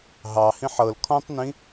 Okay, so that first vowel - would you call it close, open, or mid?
open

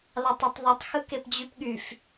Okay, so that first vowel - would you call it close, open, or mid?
open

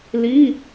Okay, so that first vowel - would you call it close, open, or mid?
close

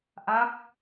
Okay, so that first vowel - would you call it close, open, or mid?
open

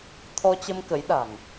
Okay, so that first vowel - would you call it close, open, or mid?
mid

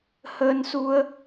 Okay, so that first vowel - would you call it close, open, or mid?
mid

